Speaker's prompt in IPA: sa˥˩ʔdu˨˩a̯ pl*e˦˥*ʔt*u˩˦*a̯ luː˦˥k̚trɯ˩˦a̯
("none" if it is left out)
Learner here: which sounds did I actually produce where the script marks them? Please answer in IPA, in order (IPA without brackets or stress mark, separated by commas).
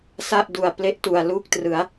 e˦˥, u˨˩